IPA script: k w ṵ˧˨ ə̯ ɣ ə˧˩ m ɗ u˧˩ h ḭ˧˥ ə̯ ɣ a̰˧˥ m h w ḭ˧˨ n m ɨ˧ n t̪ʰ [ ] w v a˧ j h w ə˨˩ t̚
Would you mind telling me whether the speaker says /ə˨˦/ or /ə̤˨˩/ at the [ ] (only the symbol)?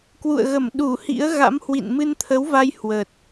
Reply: ə˨˦